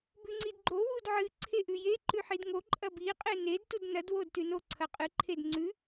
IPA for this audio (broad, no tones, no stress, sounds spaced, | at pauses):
b ʉ ŋ͡ǀ i d ɡ͡ǃ o w u d ʕ ɨ ǀʰ e ʔ ʉ j e ǃ ʉ ħ i d ŋ o ǃʼ ɐ b i qʼ e n e d t u d n ɐ d w o d t ʉ n o ǀʰ ɐ qʼ ɨ ǃʰ e d ŋ͡ǀ ʉ